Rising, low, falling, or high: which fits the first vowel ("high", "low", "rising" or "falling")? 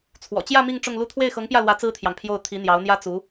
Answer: low